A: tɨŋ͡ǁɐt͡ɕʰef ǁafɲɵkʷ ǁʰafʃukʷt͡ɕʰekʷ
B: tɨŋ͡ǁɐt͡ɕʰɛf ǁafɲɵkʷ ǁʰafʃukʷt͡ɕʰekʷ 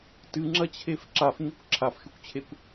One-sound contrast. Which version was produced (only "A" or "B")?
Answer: A